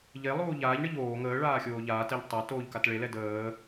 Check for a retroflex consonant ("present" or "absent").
present